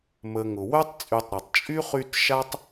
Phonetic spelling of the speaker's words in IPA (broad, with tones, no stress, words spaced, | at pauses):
mə˨ ŋʊ˩wœ˥tˤt͡sʼy˨tˤɾe˩tˤ t͡ʃʼy˥ χy˦tʃa˥tˤ